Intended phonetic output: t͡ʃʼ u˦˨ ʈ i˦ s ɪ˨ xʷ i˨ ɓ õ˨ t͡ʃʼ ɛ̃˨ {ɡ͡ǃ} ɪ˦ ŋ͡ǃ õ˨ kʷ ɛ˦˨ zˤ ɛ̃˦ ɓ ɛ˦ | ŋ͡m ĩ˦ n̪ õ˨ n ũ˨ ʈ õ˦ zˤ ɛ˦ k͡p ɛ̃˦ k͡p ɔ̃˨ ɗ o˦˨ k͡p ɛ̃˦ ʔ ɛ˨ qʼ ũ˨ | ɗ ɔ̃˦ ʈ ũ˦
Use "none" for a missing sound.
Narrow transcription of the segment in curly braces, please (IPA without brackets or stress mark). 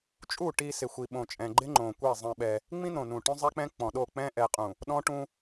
ɡ͡ǃ